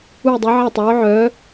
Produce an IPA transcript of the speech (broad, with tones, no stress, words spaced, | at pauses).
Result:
u˥˧i̯dˤu˧˥ ʕa˥˧tˤœː˧˥ ʕœː˧˥